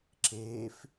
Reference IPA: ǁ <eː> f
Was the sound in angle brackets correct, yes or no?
yes